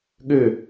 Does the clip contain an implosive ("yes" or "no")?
yes